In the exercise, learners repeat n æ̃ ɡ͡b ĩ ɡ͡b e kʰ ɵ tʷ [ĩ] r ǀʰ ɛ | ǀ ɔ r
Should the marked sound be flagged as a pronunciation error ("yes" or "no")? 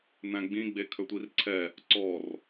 yes